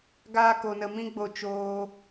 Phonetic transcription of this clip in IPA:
ɡaː˦ko˧nə˧mĩ˦ ɡ͡bo˧t͡ʃoː˧

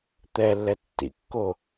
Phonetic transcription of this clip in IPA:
t̪ɛlːɛ tːḭkːo

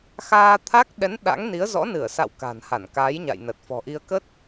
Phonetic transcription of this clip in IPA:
xaː˧t̪ʰa˦˥k̚ ɗɛ˨˦n ɗa̰˧˥ŋni˨˦ə̯ zɔ̰˧˥ nɨ˧˩ə̯sa̰˧˨w ka̤˨˩nha˧˩nkaː˨˦j ɲa̰˧˨jnə˨˩t̚fɔ̤˨˩ʔi˧ə̯ kə˦˥t̚

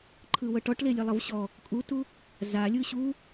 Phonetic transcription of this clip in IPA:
ǃʰɯwɤʈɔʈ lelʲelˠɤvɕɔ | kʼutu | za lʲɯɕu

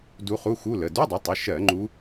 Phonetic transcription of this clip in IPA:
du˧˥χu˧˥˧xu˧˥˧lə˩˧˩ du˧˥˧dˤə˩˥tˤə˩˧˩ʃɜ˧˩˧ ŋ͡ǃu˧˥

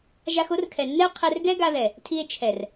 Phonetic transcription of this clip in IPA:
ʒa˧xo˦rkʰɛ˨nːɛ˦o̯ qʰɛ˧rɡɛ˦ ɡa˧ðɛ˨ | tʰi˧e̯t͡ʃʰɛ˨r

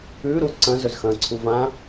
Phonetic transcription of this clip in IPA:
ʉːɾuː ǀɐ̃zɵzxɐ̃ːǀʰu vã

